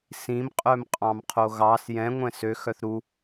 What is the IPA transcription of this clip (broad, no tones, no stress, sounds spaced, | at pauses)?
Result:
s ĩ m qʼ œ m qʼ ɑ̃ m qʰ o ɣ ɑ s j ɛ̃ ŋʷ ɛ̃ s ø x œ θ ɾ u